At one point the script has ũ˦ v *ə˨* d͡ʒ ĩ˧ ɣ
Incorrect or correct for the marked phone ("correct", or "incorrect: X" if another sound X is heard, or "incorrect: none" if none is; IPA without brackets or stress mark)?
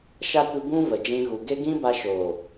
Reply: correct